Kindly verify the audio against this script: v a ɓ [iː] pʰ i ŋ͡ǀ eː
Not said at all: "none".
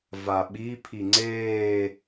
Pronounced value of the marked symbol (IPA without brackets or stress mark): i